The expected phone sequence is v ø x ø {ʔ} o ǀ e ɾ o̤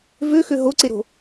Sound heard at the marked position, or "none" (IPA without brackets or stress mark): ɦ